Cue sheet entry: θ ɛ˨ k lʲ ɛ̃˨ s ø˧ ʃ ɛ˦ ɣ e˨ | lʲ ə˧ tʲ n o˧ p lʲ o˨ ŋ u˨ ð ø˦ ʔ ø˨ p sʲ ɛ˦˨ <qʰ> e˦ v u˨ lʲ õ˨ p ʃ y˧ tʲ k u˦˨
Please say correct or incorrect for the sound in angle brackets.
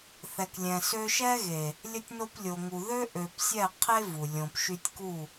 correct